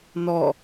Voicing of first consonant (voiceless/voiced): voiced